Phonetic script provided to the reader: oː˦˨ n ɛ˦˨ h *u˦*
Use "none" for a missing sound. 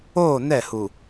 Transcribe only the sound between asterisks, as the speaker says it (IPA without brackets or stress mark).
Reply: u˨